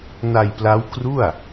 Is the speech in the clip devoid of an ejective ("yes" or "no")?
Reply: yes